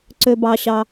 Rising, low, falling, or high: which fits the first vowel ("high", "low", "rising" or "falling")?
high